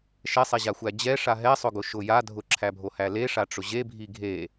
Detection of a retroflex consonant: present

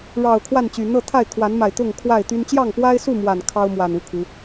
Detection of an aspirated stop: present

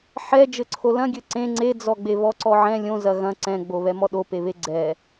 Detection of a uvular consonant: absent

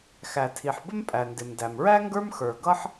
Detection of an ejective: present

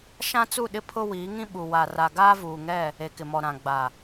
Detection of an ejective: absent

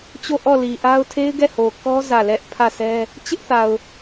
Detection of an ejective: absent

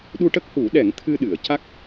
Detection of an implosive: present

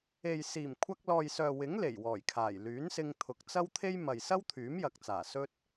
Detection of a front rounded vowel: present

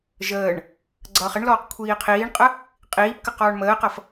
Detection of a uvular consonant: present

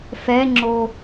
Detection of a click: present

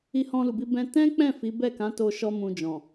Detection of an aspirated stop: absent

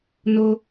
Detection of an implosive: absent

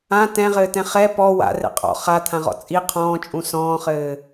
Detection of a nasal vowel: present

